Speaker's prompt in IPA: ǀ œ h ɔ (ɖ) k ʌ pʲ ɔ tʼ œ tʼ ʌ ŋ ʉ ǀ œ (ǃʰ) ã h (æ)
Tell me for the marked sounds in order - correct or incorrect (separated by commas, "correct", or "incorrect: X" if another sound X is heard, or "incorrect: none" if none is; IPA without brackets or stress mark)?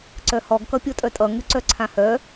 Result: incorrect: ɡ, incorrect: ǀʰ, incorrect: œ